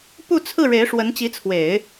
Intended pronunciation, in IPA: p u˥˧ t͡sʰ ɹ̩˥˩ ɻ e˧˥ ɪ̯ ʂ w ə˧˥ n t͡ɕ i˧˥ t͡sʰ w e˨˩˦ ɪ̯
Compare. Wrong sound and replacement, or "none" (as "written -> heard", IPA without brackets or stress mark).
none